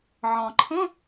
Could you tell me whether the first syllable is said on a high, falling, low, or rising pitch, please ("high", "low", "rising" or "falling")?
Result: low